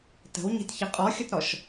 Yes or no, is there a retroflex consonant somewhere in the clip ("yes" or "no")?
no